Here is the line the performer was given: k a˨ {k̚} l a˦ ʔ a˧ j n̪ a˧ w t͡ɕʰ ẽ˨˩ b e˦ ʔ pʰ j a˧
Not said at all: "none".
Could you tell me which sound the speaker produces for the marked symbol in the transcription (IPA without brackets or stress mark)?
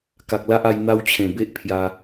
k̚